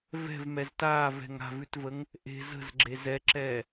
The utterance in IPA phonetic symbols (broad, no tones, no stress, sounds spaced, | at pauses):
v ɛ̤ v m ɛ z t aː v ɛ̤ ŋ a̤ v ʉ t v ə ŋ | ʔ e̤ z ə̤ z ɡ͡ǁ e z ɛ ǁ ɛː